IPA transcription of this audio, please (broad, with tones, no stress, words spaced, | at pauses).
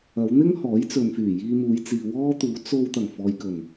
ɐ˨˧wn̪ɪ˥ŋ hɔː˨˥jt͡sɵ˨nfyː˨˩ jiː˧muː˨˧jt͡siː˨ wɔː˥t̪uː˨˥ t͡so˧w t̪ɐ˨˩ŋfɔː˨jkɵ˨˩n